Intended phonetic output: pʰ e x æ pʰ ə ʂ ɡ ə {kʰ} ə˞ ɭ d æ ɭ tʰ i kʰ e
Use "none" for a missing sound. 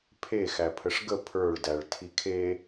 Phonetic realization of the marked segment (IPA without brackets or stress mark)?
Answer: pʰ